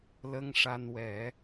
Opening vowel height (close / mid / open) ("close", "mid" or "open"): mid